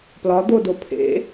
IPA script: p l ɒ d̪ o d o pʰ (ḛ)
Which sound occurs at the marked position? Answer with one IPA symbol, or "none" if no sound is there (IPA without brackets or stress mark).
ḛ